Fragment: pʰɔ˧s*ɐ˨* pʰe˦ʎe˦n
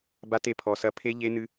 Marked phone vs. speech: incorrect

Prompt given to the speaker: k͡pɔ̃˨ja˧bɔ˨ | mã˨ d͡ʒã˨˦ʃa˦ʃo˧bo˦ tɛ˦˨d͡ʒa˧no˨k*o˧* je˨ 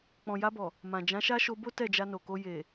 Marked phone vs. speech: correct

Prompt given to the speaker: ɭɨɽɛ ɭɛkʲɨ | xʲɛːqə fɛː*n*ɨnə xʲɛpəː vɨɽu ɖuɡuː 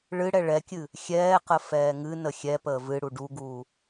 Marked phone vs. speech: incorrect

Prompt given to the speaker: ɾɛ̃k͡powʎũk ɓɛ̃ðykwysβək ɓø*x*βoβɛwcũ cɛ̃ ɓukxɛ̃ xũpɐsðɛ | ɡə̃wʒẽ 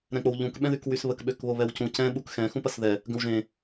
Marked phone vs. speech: incorrect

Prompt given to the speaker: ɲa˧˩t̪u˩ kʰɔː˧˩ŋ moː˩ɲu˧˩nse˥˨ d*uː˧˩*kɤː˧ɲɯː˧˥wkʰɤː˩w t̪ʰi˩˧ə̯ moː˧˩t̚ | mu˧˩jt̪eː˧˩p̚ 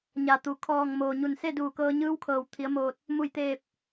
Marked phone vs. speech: correct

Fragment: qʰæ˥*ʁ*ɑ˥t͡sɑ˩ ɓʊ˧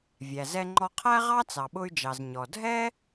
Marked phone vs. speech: correct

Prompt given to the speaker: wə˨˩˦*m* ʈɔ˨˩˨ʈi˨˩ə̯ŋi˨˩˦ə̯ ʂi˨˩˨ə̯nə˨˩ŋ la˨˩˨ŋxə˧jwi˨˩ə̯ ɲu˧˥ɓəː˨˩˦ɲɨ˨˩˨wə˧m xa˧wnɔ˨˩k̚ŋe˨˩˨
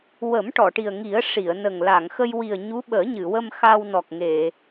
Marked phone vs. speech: correct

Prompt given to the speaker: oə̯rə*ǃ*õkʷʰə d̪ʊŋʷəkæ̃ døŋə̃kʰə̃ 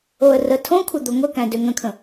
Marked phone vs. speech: incorrect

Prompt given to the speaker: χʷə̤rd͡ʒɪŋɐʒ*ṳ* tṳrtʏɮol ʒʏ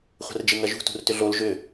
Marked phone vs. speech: correct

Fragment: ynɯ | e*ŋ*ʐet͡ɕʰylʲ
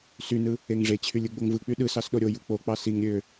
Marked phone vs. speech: correct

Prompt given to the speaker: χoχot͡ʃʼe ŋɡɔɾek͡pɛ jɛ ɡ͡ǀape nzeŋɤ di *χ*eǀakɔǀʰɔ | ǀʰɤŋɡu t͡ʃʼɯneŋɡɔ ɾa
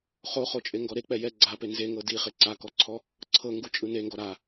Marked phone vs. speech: correct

